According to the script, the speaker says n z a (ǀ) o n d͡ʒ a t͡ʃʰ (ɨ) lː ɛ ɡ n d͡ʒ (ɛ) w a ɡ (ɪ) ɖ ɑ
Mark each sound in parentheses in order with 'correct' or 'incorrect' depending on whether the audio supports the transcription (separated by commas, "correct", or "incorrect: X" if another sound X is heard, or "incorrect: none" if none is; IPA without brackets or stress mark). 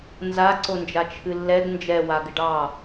correct, correct, correct, correct